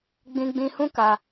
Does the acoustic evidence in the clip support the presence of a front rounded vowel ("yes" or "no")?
no